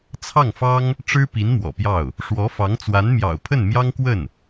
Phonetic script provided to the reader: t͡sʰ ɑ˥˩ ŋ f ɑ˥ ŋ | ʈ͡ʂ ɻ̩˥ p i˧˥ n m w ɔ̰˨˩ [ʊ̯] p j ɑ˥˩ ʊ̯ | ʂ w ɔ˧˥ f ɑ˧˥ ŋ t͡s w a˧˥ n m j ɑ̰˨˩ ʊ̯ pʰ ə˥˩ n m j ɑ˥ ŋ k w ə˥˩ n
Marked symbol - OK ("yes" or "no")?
no